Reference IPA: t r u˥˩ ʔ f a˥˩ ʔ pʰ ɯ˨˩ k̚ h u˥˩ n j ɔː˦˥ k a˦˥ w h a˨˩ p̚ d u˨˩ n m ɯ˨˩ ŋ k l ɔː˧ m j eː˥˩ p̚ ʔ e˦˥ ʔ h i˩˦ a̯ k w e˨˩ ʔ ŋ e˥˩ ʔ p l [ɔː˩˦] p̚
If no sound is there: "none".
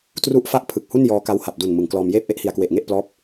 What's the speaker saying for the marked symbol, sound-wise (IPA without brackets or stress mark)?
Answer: ɔː˦˥